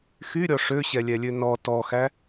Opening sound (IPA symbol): x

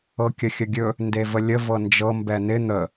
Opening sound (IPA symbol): ɤ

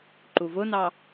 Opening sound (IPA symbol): ǃ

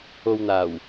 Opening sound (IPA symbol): o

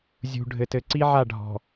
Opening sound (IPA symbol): zʲ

